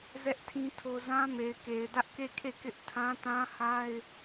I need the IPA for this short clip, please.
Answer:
z ɛ˦ ʔ tʰ ĩ˦ tʰ o˦ z ã˦ m e˨ ɪ̯ k e˨ ɪ̯ d ä˦ ʔ k e˦˨ kʰ e˦˨ k ɪ˦ ʔ tʰ ã˦ t ã˦ h a˦ ɪ̯

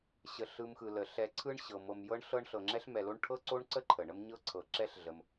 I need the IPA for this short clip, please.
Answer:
ɕ ə˩ ɬ ɯ˨ m x ɯ˩ l ə˩ ɬ ɛ˨ ǀʰ ɯ˦ ɳ ɕ ɤ˩ m ɤ˨ m j ɤ˥ ɳ ɬ ɤ˦ ɳ ɬ ɤ˨ ŋ͡ǁ ɛ˥ ɬ m ɛ˨ l o˦ ɳ ʈʰ ɤ˥ ǀ o˥ ɳ ǀ ə˥ ǃʰ ə˩ ɳ ə˥ m ɲ ɤ˥ ǀʰ ɤ˨ ǁ ɛ˥ ɬ ɮ ə˨ m

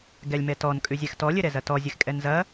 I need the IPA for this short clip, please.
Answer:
ɡ ɛ lʲ m ɛ t ɔ n kʼ ʉ zʲ ɛ x t ɔ lʲ ɘ ɾ ɛ z ɐ t ɔ zʲ ɘ x kʼ ɛ n z ɐ

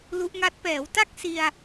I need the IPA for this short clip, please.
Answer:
l u˦˥ ʔ ŋ a˦˥ t̚ p ɛː˩˦ w t a˥˩ k̚ s i˧ a̯

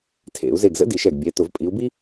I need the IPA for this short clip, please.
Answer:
tʰ ḛ˧˩˧ u̯ z e˧˩ ɡ z ə̰˥ d i˧˩˧ ʃ ɛ˧˩ ɡ bʲ ɛ˩˧˩ t ʊ˧˩˧ v pʼ i˨˦ u̯ b i˥

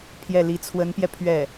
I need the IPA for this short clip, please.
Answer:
pʰ j ɛ˥˩ l i˧˥ t͡sʰ w ə˧˥ n p j ɛ˧ pʰ ɥ ɛ˥˩

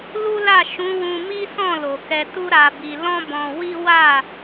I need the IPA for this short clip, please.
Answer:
l u˦ l a˦˨ ʃ ũ˨˦ w ũ˧ m i˦ s ɔ̃˦˨ l o˨ k ɛ˧ t u˦ ɾ a˧ b i˧ l ɔ̃˦ b ɔ̃˧ w i˦ w a˦˨

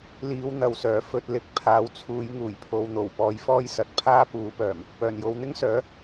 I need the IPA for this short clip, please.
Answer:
l iː˨˧ w n̪ ɐ˨ w s œː˨˩ f ɵ˧ t̚ l ɪ˨˥ k̚ pʰ aː˨˧ w t͡sʰ uː˨˧ j ŋ uː˨˩ j pʰ o˨˧ w n̪ o˨˩ w p ɔː˧ j f ɔː˥ j s ɐ˨ t̚ pʰ aː˥ p uː˨˥ p œː˨˩ m | p œː˨˩ n j o˨˧ w n̪ ɪ˥ ŋ s œː˨˥

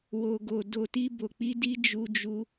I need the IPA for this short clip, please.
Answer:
w o˧ ɡ o˧ d o˧ t i˦ b o˧ k͡p i˦ d i˦ d͡ʒ u˦ d͡ʒ u˦

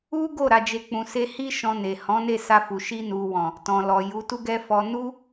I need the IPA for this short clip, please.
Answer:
u˦ ɡ o˦˨ ɾ a˨ d͡ʒ e˨ k͡p ũ˨ s e˧ h i˦ ʃ ɔ̃˧ n e˨ h ɔ̃˨˦ n e˦˨ s a˧ f u˨ ʃ i˧ n u˨ w ɔ̃˨ | t ɔ̃˨ l ɔ˨ j u˨˦ t u˦ ɡ ɛ˦ f ɔ˧ n u˦

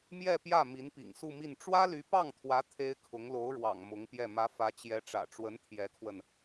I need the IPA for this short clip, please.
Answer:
m j ɛ˥˧ p j ä˥˩ m i˧˥ n p ḭ˨˩ ŋ s u˥˧ m i˥˩ n ʈ͡ʂ w ä˥ l y˧˥ p ɑ˥˩ ŋ t̪ʰ w ä˧˥ t̪ʰ e˥ ɪ̯ kʰ ʊ˧˥ ŋ l o˧˥ ʊ̯ ɻ w ɑ̰˨˩ ŋ m ʊ˧˥ ŋ p j ɛ˥˩ m ä˧˥ f ä˧˥ t͡ɕ j ɛ˧˥ ʈ͡ʂ ä̰˨˩ ʈ͡ʂ w ə˧˥ n t̪ʰ j ɛ˧˥ kʰ w ə˧ n

